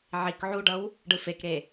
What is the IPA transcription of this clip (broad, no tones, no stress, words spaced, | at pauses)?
ʕik ʕuɖʌw | ɖɯfekɾe